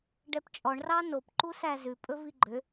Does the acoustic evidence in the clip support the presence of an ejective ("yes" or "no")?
yes